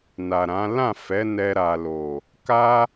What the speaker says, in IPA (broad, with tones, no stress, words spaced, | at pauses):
na˨ɾã˨˦ lã˦˨fɛ˨˦ nɛ˧ ɾa˨lo˨ | ka˦